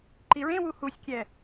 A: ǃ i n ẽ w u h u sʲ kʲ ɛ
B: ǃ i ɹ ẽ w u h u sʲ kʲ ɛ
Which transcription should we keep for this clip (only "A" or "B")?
B